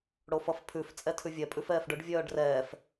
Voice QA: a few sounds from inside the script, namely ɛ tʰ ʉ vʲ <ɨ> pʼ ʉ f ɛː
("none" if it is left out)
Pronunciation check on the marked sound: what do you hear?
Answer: ɛ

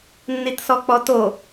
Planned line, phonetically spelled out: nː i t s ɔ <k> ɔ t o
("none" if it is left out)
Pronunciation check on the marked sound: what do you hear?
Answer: k͡p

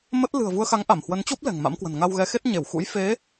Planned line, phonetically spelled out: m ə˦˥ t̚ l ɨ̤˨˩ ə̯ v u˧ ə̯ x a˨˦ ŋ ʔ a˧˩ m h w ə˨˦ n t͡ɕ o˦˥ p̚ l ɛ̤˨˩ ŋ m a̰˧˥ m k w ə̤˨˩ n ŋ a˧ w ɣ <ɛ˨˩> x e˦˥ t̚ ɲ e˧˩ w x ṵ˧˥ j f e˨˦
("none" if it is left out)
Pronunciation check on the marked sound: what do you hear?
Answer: ɛ˨˦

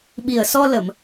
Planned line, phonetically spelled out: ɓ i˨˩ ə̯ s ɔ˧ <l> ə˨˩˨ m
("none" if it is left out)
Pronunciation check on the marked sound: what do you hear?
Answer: l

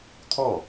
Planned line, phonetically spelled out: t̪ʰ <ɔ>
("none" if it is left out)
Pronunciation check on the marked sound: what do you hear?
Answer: ɔ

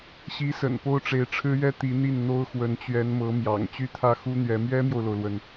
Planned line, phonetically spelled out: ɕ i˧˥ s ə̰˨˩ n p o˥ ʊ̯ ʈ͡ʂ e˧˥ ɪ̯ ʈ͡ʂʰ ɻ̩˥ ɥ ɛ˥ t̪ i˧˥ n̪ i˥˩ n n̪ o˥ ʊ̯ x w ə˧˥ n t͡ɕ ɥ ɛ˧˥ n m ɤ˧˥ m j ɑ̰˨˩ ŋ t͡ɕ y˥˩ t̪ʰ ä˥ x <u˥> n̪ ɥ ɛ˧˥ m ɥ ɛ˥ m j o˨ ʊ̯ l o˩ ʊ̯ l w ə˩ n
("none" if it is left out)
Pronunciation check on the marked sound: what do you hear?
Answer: u˥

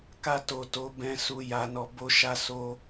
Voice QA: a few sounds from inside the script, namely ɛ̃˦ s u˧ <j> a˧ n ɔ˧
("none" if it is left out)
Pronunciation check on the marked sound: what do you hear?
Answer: j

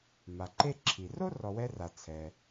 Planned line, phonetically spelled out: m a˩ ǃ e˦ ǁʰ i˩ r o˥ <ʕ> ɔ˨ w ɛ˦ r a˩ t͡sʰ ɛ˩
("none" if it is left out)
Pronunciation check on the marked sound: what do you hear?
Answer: r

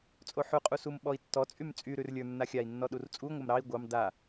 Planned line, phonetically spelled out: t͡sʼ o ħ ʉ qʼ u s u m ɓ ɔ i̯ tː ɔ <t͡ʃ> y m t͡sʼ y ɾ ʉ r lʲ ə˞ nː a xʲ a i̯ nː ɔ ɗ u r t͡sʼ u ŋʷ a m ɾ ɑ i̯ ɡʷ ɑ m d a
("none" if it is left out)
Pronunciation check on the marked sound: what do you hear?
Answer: t͡sʼ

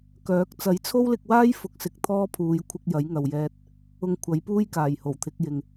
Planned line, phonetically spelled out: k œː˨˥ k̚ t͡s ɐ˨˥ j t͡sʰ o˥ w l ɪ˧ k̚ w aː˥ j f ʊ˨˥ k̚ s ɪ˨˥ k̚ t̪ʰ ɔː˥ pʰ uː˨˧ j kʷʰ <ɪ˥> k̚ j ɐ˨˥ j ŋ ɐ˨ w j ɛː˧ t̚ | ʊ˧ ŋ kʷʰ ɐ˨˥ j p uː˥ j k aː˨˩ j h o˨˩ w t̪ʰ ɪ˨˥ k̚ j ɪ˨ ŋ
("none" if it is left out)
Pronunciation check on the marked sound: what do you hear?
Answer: ɪ˧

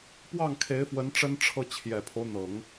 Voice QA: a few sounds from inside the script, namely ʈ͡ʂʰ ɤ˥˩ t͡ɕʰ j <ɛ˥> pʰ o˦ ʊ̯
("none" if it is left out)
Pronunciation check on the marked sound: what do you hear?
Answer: ɛ˨˩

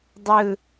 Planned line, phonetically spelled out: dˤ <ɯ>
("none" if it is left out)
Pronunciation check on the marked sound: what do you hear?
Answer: ɯ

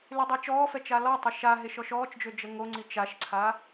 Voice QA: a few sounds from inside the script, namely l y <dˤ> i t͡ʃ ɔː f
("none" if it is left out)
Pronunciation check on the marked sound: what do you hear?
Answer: dˤ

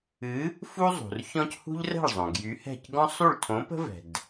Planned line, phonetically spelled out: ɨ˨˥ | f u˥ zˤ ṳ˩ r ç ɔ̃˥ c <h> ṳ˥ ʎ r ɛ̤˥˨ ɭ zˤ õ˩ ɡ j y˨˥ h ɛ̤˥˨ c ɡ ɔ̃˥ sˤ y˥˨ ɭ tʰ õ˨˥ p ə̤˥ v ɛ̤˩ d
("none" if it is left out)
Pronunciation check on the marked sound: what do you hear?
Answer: h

